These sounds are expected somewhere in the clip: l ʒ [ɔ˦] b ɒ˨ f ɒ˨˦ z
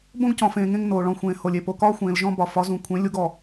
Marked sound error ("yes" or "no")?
yes